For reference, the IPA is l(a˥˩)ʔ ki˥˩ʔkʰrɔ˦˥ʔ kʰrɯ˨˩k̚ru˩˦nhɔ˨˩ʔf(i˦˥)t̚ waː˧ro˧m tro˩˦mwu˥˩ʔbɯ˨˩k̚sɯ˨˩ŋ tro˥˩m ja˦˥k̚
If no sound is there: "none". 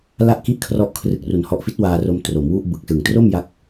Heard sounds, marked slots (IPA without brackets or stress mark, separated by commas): a˥˩, i˦˥